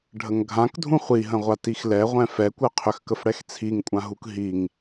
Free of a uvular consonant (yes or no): no